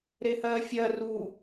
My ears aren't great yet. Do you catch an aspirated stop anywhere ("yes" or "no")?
no